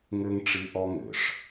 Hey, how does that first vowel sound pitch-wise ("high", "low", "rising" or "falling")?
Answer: high